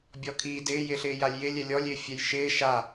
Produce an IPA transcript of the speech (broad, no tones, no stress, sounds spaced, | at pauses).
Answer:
bʲ ɔ kʰ i d ɪː j ɪː ɬ ɪː j a lʲ j ɪ lʲ ɛ lʲ ɔ lʲ ɪː fʲ ɛ j ʃ ɪː ʃ a